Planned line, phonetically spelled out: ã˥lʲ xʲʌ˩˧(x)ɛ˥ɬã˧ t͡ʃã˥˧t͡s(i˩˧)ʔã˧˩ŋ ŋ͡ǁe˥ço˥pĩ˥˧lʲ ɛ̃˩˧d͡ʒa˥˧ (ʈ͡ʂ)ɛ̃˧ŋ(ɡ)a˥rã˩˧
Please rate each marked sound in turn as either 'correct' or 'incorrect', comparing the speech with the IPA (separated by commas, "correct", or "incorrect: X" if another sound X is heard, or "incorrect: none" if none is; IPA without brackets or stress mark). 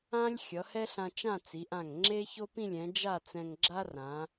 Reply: incorrect: h, correct, incorrect: t͡s, incorrect: ɡ͡ǁ